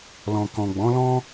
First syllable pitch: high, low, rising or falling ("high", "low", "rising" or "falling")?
low